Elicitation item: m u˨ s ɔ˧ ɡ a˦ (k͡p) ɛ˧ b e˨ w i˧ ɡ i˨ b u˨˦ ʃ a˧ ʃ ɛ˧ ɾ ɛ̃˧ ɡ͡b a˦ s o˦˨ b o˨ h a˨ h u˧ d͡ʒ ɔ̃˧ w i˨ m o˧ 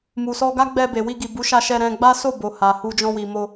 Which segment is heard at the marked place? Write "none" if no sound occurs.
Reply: ɡ͡b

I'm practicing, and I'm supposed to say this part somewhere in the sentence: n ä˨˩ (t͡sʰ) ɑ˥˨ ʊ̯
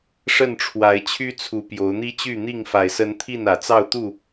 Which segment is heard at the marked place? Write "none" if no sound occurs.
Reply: t͡s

